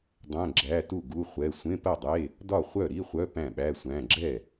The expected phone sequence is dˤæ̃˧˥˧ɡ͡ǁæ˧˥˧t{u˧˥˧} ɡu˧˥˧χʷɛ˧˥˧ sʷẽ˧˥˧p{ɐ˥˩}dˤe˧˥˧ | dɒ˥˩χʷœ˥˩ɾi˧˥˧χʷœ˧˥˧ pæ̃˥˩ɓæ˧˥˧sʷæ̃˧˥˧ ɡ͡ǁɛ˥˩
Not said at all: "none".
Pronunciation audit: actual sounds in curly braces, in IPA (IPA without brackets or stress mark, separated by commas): u˥˩, ɐ˥˩